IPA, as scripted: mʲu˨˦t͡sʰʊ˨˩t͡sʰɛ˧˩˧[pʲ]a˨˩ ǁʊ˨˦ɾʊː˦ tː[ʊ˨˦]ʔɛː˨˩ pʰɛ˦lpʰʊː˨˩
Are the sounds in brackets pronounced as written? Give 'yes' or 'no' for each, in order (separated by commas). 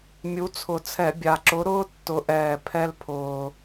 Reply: no, yes